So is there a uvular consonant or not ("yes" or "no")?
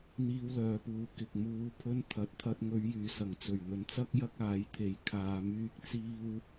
no